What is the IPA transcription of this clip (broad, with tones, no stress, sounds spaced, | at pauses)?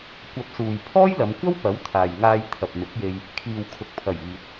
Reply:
kʷ ɐ˨˥ p̚ s uː˨ j pʰ ɔː˥ j l ɐ˨˧ m kʷ ɐ˥ w p ɐ˨˥ w t̪ʰ aː˨ j ŋ aː˧ j t̪ʰ ɐ˨ p̚ m ɪ˨˥ k̚ j e˧ j | kʰ iː˨ w kʰ ʊ˨ k̚ pʰ ɐ˨˩ j iː˨ t̚